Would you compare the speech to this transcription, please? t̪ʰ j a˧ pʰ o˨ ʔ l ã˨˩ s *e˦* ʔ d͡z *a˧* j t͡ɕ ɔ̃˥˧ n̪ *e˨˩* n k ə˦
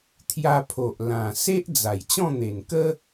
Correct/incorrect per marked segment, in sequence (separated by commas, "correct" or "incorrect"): correct, incorrect, correct